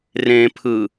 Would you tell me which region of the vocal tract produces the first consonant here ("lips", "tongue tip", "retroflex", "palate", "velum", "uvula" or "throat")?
tongue tip